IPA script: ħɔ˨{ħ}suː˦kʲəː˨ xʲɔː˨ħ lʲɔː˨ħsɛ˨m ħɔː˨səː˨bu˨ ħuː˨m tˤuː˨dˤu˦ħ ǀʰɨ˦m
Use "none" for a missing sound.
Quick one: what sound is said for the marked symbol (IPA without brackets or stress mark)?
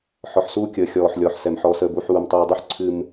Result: ħ